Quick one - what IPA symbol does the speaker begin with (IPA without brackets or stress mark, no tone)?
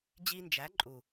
d͡ʑ